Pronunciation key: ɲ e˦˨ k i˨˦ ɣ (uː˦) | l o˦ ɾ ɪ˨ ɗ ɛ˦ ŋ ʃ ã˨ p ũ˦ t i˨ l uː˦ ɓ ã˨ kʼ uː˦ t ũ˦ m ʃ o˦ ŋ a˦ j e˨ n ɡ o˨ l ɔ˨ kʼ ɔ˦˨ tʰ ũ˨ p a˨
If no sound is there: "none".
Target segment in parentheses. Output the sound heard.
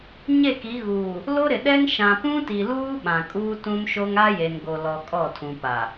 uː˨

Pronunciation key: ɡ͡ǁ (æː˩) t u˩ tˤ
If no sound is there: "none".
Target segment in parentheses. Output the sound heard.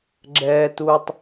ɛː˩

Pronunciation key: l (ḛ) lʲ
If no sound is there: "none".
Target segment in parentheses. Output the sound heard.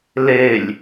e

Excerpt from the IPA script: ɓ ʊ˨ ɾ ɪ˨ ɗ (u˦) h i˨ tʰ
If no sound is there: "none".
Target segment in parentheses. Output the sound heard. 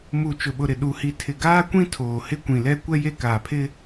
u˨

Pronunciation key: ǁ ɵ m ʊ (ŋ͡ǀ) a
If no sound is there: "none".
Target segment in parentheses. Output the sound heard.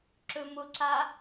ǀ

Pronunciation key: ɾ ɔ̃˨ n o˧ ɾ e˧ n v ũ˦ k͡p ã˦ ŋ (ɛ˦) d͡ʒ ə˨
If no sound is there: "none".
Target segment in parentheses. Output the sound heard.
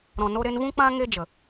e˦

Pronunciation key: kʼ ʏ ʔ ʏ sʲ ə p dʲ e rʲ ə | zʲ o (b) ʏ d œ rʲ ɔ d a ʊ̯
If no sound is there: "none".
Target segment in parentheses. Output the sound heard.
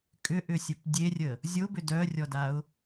b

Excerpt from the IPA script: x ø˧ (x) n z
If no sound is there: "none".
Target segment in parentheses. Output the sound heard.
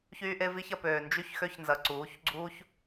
ç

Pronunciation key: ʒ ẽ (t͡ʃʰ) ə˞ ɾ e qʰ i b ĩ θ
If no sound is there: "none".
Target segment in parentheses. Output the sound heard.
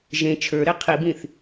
t͡ʃʰ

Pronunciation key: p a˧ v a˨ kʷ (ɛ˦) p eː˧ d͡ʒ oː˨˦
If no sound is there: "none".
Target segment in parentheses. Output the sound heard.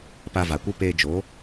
ɨ˦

